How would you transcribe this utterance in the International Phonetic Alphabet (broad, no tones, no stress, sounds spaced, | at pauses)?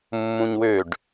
mː ũ ɲ w ø ɖ